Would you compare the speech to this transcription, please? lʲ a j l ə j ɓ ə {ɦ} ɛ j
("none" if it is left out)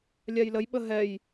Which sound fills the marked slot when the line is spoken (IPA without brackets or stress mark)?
ɦ